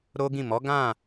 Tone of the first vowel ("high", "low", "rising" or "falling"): high